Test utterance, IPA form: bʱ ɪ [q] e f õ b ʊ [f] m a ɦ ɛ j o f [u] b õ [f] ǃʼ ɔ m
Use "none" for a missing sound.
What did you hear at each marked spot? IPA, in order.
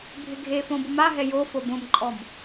ɡʱ, none, o, m

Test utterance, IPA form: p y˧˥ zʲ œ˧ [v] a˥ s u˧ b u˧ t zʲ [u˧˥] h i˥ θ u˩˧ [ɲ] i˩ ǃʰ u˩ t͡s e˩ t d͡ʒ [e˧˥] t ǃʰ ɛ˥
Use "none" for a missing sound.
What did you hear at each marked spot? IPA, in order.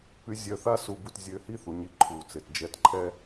θ, ø˧˥, ɲ, ɛ˧˥

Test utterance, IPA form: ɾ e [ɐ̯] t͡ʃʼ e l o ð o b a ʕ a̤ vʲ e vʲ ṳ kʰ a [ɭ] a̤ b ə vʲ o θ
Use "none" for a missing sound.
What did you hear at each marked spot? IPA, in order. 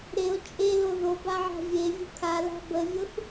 o̯, l

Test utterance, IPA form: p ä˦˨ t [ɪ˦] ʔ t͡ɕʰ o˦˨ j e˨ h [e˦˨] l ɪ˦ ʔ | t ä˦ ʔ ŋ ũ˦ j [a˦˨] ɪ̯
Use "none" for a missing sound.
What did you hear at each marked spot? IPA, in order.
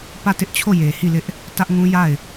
ɪ˦, i˦˨, a˦˨

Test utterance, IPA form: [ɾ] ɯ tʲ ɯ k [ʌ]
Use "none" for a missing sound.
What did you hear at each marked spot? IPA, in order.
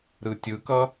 ɾ, ʌ

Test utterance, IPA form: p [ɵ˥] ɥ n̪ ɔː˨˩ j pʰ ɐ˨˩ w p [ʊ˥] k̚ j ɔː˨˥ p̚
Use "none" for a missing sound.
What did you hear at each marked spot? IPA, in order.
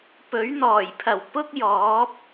ɵ˨˥, ʊ˥

